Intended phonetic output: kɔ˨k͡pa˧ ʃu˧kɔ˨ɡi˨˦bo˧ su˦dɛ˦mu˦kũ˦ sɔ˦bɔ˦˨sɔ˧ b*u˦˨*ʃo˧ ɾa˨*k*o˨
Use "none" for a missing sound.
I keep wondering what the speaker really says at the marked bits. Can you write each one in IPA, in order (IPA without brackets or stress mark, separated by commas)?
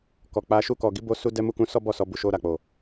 u˨, k͡p